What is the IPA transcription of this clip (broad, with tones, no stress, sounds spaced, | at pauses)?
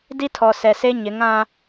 d i˦ tʰ ɔ˨ s ɛ˨ s e˦ ɲ ɪ˨˦ ŋ ã˦